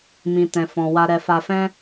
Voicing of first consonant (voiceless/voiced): voiced